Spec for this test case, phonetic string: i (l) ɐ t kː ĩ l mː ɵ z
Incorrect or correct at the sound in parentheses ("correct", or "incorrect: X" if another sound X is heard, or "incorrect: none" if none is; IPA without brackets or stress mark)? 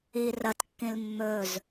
incorrect: r